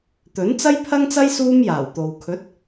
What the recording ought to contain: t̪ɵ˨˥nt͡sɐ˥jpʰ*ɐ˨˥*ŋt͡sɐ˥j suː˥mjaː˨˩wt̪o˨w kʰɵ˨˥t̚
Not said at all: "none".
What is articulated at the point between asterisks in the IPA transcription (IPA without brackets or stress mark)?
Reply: ɐ˥